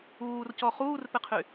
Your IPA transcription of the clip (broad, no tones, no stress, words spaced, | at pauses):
uːrcɔ χuːrpɪqʰy